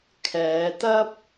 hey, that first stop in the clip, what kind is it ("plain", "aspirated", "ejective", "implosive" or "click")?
aspirated